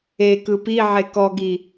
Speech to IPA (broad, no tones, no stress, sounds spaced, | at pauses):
e k ɯ p i ʕ e k ɔ ɡ i